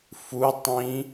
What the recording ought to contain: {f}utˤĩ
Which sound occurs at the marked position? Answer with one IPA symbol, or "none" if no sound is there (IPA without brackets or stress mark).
f